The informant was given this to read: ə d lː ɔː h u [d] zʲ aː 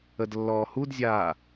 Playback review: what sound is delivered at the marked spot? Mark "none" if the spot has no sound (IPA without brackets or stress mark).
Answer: d